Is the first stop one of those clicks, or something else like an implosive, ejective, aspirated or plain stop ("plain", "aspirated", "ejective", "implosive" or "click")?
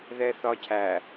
aspirated